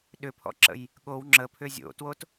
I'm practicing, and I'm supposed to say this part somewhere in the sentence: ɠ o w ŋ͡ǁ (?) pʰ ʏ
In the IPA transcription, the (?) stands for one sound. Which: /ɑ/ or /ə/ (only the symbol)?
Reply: ə